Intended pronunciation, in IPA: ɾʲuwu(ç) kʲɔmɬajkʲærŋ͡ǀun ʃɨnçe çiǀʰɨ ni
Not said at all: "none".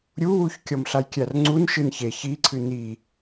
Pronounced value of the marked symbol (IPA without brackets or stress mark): ç